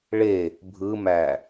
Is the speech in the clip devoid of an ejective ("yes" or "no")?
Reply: yes